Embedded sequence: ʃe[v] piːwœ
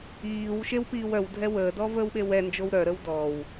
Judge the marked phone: incorrect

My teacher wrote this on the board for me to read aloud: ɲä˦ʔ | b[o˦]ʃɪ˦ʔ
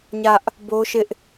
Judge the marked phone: correct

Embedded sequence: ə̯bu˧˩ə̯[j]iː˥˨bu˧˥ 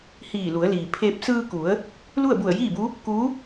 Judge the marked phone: correct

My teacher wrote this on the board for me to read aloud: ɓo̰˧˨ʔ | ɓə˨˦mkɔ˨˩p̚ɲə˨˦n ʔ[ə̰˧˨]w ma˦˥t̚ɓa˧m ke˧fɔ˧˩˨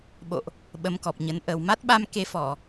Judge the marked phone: incorrect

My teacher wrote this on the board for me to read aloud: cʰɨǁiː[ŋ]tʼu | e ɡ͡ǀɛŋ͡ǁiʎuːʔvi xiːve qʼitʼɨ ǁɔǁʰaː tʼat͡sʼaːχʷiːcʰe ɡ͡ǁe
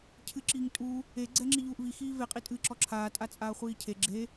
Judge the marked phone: correct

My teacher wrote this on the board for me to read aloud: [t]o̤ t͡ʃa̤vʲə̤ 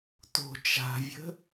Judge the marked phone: correct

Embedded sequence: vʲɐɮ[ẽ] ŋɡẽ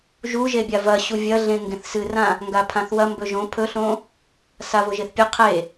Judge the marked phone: correct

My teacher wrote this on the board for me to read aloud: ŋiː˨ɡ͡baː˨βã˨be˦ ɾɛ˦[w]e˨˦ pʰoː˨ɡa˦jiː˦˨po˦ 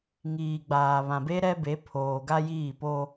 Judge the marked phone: incorrect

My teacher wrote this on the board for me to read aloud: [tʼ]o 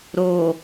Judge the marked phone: incorrect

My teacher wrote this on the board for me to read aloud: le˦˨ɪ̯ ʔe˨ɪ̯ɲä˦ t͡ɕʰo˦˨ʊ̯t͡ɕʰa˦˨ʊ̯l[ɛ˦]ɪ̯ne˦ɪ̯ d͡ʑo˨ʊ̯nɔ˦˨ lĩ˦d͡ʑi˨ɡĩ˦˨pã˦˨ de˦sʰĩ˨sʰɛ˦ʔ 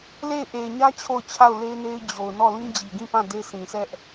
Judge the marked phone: incorrect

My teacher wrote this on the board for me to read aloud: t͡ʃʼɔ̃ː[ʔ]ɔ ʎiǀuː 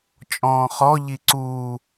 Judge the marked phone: incorrect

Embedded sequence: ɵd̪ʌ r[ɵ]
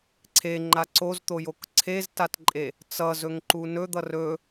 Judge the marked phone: correct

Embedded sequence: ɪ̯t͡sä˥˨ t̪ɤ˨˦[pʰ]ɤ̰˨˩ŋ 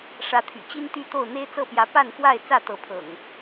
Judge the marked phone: correct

